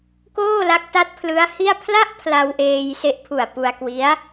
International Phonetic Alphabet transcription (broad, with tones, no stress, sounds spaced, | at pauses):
k oː˥˩ l a˦˥ k̚ t a˦˥ t̚ pʰ l ɯ˦˥ a̯ h i˥˩ a̯ pʰ l a˥˩ ʔ pʰ l a˧ w ʔ eː˧ j s e˦˥ ʔ pʰ u˨˩ a̯ p u˧ a̯ k w i˦˥ a̯